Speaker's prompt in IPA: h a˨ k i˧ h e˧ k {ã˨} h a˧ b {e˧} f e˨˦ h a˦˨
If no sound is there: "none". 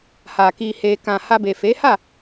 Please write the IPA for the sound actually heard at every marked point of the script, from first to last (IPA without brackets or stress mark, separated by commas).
ã˨, e˨